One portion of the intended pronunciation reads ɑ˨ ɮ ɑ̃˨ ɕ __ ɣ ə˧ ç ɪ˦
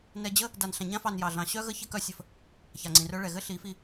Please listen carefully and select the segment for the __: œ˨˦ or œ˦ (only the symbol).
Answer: œ˦